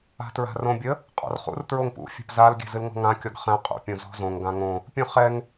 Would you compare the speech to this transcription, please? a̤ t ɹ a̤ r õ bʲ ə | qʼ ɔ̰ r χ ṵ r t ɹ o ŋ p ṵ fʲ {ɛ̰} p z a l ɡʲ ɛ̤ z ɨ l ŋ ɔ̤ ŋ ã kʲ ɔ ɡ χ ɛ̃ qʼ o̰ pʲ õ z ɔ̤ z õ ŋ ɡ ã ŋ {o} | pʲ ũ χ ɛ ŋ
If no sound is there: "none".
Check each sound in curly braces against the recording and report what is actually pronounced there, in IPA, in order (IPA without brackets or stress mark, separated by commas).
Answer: ɛ̤, õ